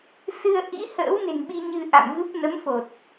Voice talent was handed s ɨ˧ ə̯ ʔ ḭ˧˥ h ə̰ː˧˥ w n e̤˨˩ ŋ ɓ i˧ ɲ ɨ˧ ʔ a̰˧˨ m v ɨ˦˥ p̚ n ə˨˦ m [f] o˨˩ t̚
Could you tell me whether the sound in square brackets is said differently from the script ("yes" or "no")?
no